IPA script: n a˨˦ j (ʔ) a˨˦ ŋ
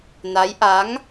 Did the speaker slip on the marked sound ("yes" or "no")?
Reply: no